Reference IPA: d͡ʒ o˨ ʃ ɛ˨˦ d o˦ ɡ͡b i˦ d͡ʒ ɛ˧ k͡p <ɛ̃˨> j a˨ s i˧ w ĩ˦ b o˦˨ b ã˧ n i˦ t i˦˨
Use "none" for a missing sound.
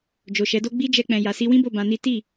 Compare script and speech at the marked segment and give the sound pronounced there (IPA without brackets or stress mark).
ɛ̃˨